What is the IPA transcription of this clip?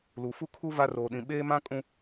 l u˨ f u˦ kʰ u˦ v a˦ r oː˨ ɗ ĩ˨ ɓ eː˦ m ã˦ kʼ ũ˦

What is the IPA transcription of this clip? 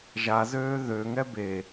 ʒ a z øː ð ø ŋ ɛ b e

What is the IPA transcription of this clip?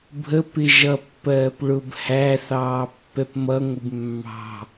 bʱ ə p ɪ ʒ ʌ pː ɜː p ɭ ʊ b h æ θ ɑː pː ɛ p m ʌ ŋʷ ɪ b mː ɑ̤

